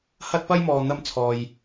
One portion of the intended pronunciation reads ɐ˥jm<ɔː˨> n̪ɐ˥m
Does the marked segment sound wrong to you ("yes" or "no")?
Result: no